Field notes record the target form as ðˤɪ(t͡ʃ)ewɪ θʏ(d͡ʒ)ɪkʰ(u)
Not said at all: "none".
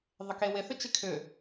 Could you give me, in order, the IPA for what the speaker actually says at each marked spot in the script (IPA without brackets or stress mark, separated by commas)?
k, t͡ʃ, ʏ